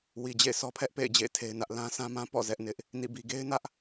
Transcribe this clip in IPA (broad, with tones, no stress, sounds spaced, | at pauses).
w i˨ d͡ʑ ḛ˦˨ ɪ̯ sʰ ɔ˦ pʰ ɛ˦ ʔ p ḛ˦˨ ɪ̯ d͡ʑ ḛ˦˨ ɪ̯ tʰ e˦ ɪ̯ n ä˦ ʔ l ã˦ s ã˦ m ã˦ p ɔ̰˦˨ z ɛ˦ ʔ n ɪ˦ ʔ | n ḭ˦˨ b i˦ ɡ e˦ ɪ̯ n ä˦ ʔ